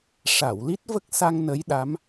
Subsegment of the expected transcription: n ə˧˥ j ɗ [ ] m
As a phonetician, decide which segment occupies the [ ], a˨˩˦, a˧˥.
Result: a˧˥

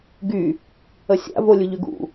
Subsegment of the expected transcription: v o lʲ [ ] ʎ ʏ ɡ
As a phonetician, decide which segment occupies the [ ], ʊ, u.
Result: ʊ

